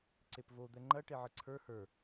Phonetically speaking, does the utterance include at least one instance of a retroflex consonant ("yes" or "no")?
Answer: yes